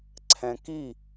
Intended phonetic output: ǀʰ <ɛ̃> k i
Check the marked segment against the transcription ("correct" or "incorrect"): correct